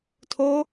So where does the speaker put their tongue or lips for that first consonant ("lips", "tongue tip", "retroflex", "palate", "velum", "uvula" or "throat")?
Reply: tongue tip